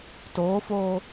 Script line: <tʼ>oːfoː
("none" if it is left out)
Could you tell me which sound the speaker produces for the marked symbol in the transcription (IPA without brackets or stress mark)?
t